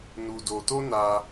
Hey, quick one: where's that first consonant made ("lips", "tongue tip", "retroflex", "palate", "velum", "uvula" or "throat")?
tongue tip